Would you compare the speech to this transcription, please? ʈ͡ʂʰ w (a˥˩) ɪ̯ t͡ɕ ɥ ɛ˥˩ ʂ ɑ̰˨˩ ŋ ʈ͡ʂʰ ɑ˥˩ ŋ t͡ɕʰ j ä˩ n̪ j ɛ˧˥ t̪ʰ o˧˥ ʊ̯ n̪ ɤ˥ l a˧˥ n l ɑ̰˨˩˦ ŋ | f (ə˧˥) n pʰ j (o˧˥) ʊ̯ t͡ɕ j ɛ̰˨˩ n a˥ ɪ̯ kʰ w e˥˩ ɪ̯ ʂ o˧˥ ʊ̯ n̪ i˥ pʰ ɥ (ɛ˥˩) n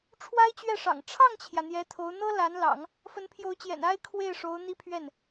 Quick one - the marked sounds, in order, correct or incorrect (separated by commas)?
incorrect, correct, correct, correct